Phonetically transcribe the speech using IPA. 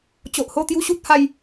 t͡ɕ o˨ ʔ h o˥˧ t̪ j u˦ ɕ u˦ t̚ h a˥˧ j

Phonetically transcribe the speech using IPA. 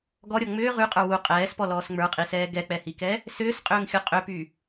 ɡ ɔ ɾʲ ɔ ŋ͡m ʏː ʁ y qʼ ə˞ w u qʼ ɛː s p ɔ l ɔː s ŋ͡m ə˞ qʼ i s ɛː ɡ ɛ k͡p ɛ h i k ɛ | s ʏː s qʼ ʏː ŋ xʲ ɔ qʼ ʏ p y

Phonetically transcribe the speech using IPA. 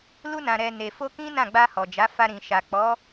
l u˧ n ã˨ ɾ ɛ˨ n e˨ f o˧ k ĩ˦ n ã˦˨ ɡ͡b a˧ h ɔ˨ d͡ʒ a˨˦ f a˧ ɾ ĩ˨ ʃ a˨ k͡p ɔ˨˦

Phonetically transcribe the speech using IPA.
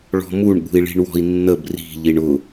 ɭ ɔ̤ m u ɳ ɠ ṳ i̯ ɭ i̤ ɳ w ɔ̤ i̯ nː ə b r i̤ ʎ i ɳ ʊ

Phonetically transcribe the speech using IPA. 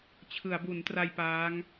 t͡ɕʰ ɯ˩˦ a̯ b u˩˦ n t r a˧ j p aː˦˥ ŋ

